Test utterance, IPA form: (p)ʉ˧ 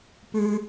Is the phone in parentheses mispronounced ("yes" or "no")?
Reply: no